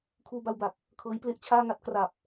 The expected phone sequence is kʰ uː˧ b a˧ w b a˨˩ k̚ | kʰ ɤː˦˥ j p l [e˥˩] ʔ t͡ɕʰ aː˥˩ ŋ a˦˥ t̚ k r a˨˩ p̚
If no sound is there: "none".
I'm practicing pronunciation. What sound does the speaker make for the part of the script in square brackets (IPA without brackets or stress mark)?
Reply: e˥˩